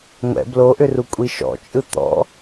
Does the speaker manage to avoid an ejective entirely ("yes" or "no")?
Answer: no